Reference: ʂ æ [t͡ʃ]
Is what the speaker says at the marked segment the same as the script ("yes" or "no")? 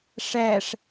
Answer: no